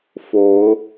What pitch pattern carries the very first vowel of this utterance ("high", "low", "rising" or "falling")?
rising